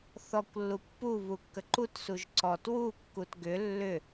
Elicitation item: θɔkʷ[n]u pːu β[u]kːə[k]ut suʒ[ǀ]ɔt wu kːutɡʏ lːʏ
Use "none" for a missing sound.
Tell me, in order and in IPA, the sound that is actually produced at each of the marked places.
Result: lː, u, ǃ, ǀ

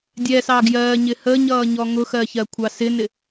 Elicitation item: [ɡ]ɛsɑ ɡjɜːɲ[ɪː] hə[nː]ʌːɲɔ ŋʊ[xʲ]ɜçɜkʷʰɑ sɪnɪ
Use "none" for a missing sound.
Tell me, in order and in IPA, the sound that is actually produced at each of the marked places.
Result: dʲ, ɪ, ɲ, x

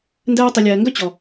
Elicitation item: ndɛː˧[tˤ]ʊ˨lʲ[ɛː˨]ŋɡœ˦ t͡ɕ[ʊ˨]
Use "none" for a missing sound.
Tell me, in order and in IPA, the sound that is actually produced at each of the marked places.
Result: tˤ, ɛː˨, ɔ˨

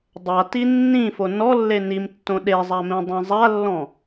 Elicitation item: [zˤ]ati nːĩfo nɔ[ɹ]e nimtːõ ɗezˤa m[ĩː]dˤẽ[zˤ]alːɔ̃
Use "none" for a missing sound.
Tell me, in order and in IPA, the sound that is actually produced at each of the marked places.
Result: dˤ, lː, ĩ, zˤ

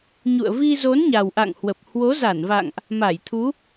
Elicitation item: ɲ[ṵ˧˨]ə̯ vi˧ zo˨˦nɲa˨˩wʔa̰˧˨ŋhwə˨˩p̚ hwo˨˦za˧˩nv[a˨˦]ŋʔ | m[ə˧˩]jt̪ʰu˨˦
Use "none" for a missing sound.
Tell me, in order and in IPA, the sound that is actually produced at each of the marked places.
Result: ṵ˧˨, a̰˧˨, a˧˩

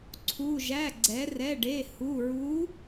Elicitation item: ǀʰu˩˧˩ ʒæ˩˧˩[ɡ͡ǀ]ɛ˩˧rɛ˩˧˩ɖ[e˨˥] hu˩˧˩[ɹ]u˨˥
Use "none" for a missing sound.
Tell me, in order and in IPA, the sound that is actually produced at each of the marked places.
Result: ɡ͡ǀ, e˩˧˩, ɹ

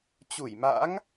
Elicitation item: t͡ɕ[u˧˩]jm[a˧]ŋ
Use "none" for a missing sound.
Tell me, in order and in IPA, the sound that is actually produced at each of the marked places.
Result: u˧˩, a̰˧˥

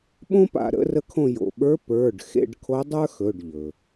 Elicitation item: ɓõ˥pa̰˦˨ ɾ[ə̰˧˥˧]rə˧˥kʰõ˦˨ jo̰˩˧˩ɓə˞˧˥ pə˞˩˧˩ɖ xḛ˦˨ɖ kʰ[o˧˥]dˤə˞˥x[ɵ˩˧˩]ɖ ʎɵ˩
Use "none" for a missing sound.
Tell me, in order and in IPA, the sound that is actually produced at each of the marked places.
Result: ə̰˧˥˧, o˧˥, ɵ˩˧˩

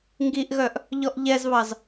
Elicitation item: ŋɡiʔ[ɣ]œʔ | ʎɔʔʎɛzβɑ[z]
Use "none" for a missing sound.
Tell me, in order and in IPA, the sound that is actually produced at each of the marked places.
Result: ɣ, z

